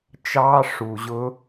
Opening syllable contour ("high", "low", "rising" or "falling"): high